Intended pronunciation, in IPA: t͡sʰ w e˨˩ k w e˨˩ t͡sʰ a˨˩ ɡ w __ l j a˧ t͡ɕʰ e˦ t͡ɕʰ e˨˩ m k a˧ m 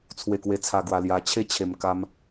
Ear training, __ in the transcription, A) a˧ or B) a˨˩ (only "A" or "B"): B